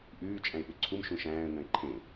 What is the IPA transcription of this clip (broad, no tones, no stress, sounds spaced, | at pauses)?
ʔ ʉː t͡ʃʼ æ̃ ɪ̯ ɓ ɵ ǀʰ u m ʃ ũ ʃ æ̃ː ə̯ ŋ œ̃ ɪ̯ ǃʰ ẽ